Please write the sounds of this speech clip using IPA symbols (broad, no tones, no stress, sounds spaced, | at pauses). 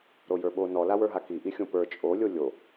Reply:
ɾ o j ə˞ ɓ o n ɔ l a w ə˞ ɦ a k i ʔ i xʲ õ p ə˞ t͡ʃʼ o lʲ o lʲ o